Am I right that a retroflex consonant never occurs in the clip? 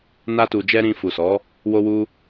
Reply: yes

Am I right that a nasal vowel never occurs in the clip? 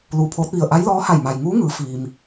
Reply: yes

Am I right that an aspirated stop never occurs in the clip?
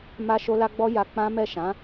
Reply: yes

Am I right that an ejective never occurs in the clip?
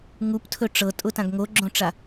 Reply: no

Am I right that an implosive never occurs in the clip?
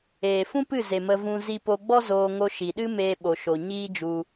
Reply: no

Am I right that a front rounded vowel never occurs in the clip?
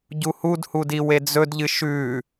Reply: yes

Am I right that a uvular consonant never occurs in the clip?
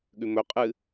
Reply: no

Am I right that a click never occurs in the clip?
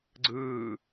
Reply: no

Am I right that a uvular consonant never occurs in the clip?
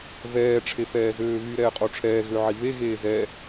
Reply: no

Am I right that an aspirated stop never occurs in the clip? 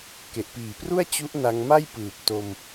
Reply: yes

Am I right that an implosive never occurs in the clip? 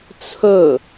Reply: yes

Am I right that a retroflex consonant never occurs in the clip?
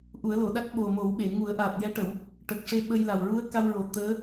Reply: no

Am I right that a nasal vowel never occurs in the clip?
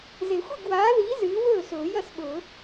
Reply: yes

